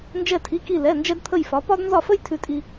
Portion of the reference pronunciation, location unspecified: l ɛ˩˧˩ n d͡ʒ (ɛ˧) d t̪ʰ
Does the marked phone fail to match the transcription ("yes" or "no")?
no